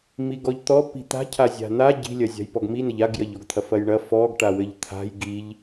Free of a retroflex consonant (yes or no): no